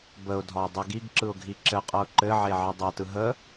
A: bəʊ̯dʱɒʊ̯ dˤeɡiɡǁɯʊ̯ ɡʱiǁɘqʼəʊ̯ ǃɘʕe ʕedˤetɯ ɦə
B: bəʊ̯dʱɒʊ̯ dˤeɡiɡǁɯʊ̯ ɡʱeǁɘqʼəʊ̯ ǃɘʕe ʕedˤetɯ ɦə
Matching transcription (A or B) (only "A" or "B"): A